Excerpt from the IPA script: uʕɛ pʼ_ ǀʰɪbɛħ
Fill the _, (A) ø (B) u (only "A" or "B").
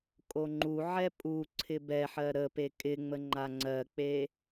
B